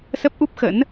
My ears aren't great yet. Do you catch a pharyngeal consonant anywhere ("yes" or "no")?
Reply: no